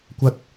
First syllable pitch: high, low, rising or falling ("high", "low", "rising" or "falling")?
high